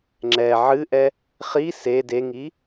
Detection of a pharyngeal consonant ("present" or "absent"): present